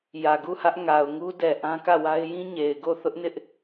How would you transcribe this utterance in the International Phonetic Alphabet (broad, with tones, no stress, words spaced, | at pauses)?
jä˨ɡu˦˨hä˦ʔ ŋa˨ʊ̯ŋu˦ dɛ˨ ʔã˦kä˦˨wa˦ɪ̯ jĩ˦ɲe˨ɪ̯ ɡo˦˨θʊ˦ʔnɪ˦ʔ